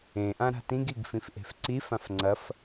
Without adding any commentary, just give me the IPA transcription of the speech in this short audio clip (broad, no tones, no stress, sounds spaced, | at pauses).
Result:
ẽ ʔ ã ɾ a̤ t ĩ ɡ i ɡ f ĩ f ʔ e̤ f ǀ i f ã f ŋ͡ǀ ɐ f